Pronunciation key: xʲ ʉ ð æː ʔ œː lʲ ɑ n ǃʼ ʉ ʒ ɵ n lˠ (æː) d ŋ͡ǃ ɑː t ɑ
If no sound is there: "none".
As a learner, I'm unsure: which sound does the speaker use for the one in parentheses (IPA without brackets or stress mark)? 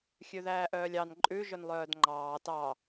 œː